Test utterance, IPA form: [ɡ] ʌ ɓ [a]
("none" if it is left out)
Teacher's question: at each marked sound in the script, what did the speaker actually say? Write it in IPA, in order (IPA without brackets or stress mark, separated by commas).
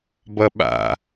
b, a̰